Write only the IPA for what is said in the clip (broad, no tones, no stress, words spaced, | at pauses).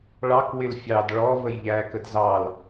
ɭɑk wɪlfʲɑd ɭɔ vəjʎæ kədzɑl